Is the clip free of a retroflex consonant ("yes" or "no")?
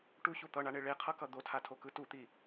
no